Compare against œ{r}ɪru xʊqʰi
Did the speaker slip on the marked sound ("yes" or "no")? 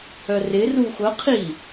no